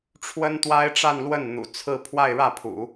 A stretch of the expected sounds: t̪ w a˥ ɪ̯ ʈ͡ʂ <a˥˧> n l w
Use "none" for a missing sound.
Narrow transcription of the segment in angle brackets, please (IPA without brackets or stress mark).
a˥˧